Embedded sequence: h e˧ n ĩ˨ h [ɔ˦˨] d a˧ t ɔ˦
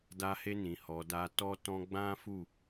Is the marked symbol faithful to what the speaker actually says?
no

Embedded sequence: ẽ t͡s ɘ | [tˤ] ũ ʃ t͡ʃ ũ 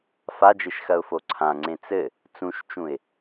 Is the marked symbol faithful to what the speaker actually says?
no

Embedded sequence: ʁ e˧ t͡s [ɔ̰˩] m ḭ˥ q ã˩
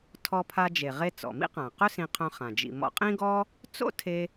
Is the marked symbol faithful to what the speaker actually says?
yes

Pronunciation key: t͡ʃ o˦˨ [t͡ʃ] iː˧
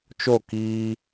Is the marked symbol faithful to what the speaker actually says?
no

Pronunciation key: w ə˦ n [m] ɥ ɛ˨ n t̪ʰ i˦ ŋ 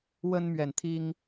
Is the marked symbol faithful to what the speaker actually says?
yes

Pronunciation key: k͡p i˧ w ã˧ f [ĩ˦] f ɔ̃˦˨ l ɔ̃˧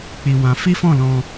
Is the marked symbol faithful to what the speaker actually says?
no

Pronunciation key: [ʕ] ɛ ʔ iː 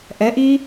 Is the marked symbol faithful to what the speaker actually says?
no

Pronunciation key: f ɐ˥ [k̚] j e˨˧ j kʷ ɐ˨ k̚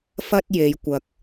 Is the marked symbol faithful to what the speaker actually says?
no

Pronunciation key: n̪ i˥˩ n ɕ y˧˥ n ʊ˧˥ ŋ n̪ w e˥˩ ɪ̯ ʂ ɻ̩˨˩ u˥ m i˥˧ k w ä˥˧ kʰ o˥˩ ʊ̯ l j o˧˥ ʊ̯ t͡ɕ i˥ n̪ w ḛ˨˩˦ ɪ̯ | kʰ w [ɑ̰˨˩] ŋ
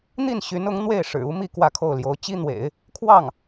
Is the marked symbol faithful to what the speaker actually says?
no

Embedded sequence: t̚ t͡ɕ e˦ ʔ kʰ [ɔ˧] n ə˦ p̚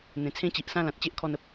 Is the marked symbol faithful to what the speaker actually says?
yes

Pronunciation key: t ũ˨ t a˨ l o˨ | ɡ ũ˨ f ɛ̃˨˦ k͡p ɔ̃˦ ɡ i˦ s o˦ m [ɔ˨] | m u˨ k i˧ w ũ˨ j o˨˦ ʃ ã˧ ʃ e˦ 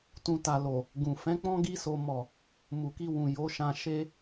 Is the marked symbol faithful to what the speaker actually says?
no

